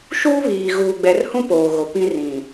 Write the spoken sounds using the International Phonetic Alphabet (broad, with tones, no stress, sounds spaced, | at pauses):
ʃ uː˦ β iː˨ ɣ uː˨ ɡ͡b ɛ˨ r h ũ˦ p oː˨ ɣ o˨ p ĩ˦ r ĩ˨